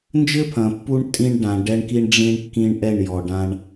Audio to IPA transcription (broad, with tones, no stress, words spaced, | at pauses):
nd͡ʒɘ˦pʰɐ̃˨pːu˦ɳ tʼĩ˦ɳ ɖã˨ ɖɛ˦ɳki˦ɳ ɖ͡ʐĩ˦ɳkːĩ˦ɳ ʔɛ˦˨ɳjɔ˨ɖã˦ɳ